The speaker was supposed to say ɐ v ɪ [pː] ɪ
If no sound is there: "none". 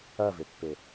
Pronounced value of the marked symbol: pː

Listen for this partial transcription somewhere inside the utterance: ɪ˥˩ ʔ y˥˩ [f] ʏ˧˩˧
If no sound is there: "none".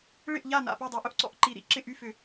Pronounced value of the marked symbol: f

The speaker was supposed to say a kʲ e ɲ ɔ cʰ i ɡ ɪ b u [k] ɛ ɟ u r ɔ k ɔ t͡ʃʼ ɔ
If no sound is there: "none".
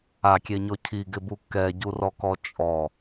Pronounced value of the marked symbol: k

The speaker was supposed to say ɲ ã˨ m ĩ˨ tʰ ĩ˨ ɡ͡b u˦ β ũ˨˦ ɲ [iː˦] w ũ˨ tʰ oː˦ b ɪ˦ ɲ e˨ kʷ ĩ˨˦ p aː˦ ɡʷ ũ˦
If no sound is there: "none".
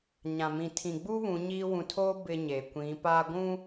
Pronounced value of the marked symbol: iː˦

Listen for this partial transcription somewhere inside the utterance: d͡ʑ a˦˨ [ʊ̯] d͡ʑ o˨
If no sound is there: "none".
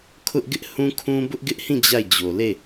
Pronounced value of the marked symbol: ɪ̯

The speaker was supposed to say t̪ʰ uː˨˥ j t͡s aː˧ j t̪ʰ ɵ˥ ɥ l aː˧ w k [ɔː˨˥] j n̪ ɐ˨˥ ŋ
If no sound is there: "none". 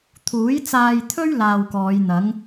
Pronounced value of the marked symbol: ɔː˨˧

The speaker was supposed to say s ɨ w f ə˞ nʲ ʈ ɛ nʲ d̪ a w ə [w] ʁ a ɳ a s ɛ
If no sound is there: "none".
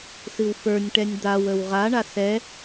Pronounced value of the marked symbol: w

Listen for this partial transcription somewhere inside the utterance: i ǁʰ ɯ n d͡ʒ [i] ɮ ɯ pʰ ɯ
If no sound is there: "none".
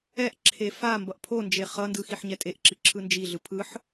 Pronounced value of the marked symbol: i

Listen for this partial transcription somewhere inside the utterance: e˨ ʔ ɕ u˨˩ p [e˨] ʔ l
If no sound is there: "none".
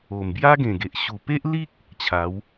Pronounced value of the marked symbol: e˦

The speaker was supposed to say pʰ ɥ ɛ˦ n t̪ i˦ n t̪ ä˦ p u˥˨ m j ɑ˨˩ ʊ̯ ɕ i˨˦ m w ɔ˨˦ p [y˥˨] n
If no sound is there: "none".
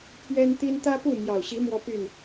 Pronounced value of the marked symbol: y˥˨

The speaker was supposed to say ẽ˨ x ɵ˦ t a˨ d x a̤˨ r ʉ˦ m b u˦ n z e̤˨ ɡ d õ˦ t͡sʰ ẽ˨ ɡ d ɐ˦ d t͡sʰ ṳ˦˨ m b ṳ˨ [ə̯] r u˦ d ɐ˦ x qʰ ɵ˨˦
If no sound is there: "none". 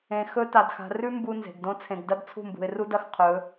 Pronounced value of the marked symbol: ɪ̯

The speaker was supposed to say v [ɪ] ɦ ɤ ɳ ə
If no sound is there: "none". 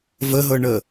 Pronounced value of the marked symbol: ə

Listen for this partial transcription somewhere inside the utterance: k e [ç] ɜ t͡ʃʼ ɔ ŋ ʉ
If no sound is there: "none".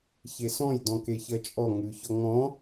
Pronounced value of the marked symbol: ç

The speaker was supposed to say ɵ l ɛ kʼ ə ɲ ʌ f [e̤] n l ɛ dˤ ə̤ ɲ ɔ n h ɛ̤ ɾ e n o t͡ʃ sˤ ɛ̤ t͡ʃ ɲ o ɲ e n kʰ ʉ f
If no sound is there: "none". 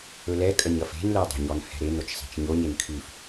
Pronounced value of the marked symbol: e̤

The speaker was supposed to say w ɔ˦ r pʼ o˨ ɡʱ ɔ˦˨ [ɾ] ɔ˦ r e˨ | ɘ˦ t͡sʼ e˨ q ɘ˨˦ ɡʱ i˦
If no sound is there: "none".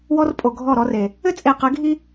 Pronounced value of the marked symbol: ɾ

